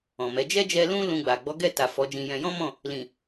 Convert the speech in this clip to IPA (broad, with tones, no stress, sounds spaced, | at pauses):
ɔ̃˨ m ɛ˨˦ d͡ʒ ɛ˦ d͡ʒ ɛ˧ l ũ˦ l ũ˧ ɡ͡b a˨ ɡ͡b ɔ˨˦ ɡ ɛ˦˨ t a˨ f ɔ˨˦ d͡ʒ ĩ˧ j ɛ̃˧ j ɔ̃˦ m ɔ̃˦˨ | l ĩ˨